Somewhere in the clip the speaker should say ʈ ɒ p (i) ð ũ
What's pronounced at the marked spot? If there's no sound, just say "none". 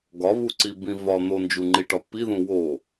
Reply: i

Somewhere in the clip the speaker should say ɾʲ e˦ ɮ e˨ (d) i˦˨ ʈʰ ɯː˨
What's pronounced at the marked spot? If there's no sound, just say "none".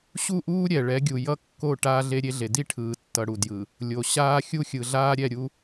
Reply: d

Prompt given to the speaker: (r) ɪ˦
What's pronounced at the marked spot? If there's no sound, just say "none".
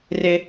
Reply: r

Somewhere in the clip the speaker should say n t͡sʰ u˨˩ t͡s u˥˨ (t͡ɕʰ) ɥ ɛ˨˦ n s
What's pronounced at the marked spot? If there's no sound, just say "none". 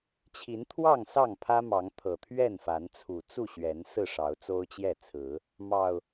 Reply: ɕ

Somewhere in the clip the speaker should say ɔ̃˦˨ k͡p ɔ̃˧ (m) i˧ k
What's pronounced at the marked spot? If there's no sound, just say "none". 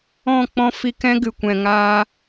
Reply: f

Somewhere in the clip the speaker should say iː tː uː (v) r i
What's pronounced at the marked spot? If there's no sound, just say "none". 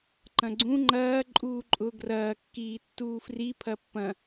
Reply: f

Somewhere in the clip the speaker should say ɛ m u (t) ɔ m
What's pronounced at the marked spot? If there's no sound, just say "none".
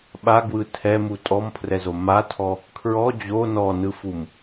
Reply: tʼ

